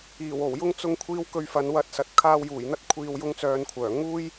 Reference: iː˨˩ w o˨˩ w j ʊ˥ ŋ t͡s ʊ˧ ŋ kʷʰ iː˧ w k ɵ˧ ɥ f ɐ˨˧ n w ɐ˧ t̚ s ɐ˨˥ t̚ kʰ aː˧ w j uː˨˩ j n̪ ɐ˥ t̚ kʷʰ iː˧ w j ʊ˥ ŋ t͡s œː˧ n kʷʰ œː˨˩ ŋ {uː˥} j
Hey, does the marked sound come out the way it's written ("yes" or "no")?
yes